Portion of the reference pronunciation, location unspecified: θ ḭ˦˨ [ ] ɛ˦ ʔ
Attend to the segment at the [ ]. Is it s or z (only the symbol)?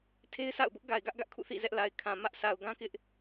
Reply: z